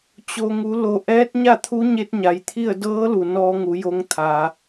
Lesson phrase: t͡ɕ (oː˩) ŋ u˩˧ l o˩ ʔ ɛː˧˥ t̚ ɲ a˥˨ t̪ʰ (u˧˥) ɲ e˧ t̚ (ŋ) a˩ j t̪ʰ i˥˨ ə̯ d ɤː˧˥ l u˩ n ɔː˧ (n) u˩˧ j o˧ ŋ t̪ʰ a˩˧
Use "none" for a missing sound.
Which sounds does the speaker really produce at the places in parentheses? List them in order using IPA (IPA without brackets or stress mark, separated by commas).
o˩, u˧˥, ɲ, ŋ